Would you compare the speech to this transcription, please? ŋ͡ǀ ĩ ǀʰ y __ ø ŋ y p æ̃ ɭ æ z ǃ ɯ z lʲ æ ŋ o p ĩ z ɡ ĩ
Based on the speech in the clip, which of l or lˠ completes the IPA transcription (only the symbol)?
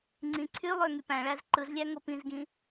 lˠ